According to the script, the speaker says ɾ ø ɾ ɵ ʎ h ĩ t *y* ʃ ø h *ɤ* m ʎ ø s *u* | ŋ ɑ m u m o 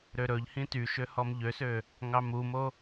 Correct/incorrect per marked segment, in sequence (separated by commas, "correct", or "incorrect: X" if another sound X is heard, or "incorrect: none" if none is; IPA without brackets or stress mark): correct, incorrect: ɔ, incorrect: ø